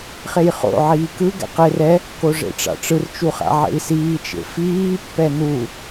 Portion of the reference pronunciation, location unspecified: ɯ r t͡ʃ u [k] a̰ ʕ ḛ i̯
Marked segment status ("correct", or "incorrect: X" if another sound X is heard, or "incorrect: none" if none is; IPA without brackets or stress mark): incorrect: χ